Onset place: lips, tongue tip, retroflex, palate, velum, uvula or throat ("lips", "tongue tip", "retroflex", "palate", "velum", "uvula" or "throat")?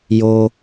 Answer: palate